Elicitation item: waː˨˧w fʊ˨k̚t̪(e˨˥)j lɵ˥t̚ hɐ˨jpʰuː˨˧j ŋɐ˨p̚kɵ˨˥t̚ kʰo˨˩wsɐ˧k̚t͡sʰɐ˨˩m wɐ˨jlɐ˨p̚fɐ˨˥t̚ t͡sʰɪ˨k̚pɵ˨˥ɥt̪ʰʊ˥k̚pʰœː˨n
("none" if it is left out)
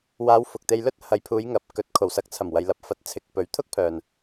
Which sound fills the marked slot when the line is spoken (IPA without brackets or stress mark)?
e˧